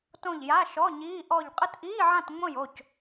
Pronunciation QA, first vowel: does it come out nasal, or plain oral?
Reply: nasal